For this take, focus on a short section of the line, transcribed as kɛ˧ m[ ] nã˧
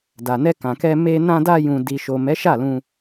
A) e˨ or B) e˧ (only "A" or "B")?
B